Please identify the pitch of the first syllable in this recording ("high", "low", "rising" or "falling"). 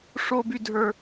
high